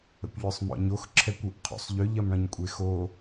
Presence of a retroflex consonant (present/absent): present